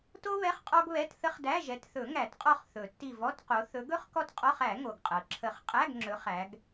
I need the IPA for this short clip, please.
t o˥ β ɛ˧˥˧ χ qʼ ɔ˥ ɡ β ɛ˧˥˧ t θ ə˥ χ d æ˧˥˧ ʒ ɛ˨˦ t θ ɵ˨˩˦ ŋ æ˨˩˦ t qʼ ɔ˦˨ χ θ ɵ˨˩˦ tː i˦˨ v ɔ˧˥˧ t q o˨˦ θ ɵ˨˦ ɡ ɵ˥ χ k ɔ˥ t qʼ ɔ˧˥˧ χ æ˨˩˦ ŋ o˩ ɡ qʼ ɤ˩ ǁʰ ə˨˩˦ χ qʼ æ˧˥˧ ɡ ŋ͡ǁ ɵ˨˦ χ æ˨˦ ɡ

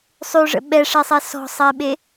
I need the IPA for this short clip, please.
sˤ ʉ ʐ ə̰ ɓ ɛ ʂ ɛ sˤ ɛ s ɔ̤ sˤ ɛ ɓ e

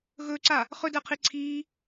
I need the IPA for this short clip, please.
ɣ ɵː ǀ a | χ ɵ d əː qʰ i ǀʰ iː

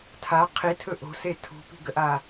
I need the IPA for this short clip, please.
tʰ a qʰ i tʰ ɵ ʔ o̤ s e tʰ ṳ p i̤ ɡ ə ʔ a

